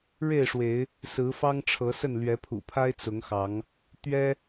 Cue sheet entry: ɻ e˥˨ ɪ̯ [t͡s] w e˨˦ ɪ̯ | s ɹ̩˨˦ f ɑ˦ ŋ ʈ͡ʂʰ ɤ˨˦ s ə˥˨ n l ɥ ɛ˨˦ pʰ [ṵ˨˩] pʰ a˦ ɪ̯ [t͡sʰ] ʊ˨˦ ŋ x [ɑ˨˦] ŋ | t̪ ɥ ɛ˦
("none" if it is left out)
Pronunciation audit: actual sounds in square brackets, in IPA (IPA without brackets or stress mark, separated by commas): ʂ, ṵ˨˩, t͡s, ɑ˨˦